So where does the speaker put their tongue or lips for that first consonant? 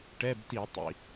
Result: retroflex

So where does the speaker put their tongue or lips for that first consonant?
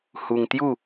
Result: throat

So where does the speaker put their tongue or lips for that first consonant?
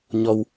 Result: palate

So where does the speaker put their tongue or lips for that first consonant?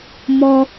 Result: lips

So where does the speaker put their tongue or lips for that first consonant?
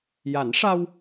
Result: palate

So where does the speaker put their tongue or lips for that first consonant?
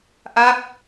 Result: throat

